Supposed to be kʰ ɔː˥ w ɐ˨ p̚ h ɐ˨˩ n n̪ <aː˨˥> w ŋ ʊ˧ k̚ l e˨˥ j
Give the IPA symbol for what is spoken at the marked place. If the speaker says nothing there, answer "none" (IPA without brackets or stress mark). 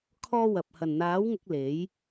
aː˨˥